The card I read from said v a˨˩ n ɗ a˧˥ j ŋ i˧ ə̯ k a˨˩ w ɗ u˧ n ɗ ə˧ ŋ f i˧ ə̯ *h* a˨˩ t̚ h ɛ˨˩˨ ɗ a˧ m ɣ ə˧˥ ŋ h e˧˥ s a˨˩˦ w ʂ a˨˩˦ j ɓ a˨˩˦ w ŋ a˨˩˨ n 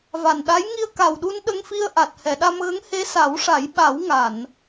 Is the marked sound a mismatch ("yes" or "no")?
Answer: yes